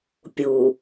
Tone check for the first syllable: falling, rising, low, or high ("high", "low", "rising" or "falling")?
low